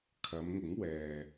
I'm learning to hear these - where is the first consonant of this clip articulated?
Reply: velum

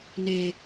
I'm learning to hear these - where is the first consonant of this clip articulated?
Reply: tongue tip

